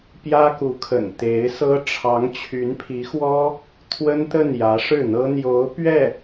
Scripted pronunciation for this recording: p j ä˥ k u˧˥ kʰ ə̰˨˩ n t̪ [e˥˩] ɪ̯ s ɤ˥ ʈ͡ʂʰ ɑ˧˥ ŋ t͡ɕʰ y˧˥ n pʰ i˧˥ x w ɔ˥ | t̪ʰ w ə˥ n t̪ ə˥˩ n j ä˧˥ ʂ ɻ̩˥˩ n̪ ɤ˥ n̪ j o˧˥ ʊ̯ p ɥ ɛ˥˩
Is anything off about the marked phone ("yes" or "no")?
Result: yes